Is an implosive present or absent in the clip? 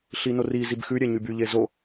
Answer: absent